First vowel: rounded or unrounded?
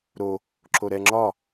rounded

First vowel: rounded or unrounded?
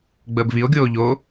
unrounded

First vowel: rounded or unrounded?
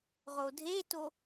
rounded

